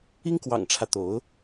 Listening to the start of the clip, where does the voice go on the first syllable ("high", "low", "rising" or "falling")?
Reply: high